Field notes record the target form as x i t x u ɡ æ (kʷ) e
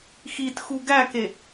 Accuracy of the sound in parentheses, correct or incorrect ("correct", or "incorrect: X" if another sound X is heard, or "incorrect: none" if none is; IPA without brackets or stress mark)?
incorrect: k